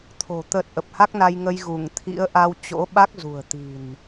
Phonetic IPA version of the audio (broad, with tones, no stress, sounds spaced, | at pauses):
t̪ʰ o̤˨˩ t̪ ə˨˩ t̚ ʔ ə˨˩ p̚ h a˦˥ k̚ n a˧ j ŋ ə˧ j ɣ u˧˩ ŋ t̪ʰ ḭ˧˥ ə̯ ʔ a˧ w t͡ɕ o̰˧˥ ɓ a˦˥ k̚ z ṳ˨˩ ə̯ t̪ i̤˨˩ n